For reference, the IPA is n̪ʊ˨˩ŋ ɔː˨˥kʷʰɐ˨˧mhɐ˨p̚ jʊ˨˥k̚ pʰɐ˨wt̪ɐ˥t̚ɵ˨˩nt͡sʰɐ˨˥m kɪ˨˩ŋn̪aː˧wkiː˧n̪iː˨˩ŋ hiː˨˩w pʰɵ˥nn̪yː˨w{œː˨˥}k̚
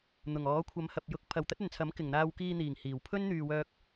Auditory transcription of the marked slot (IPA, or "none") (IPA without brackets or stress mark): œː˧